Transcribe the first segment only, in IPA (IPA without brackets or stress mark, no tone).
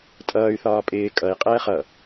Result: tʼ